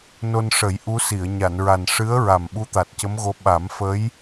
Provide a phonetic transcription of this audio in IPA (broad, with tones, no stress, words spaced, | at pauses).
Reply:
no˧nʂə˨˩˦j ʔu˧˥si˨˩˨ə̯ ɲa˨˩˨nɹa˨˩n ʂɨ˧˥ə̯ɹa˨˩m ɓu˧˥t̪a˨˩t̚cə˧˥mɣo˧˥ ɓa˨˩˦mfə˧˥j